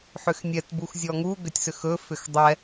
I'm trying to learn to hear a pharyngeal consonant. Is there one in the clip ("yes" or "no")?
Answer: yes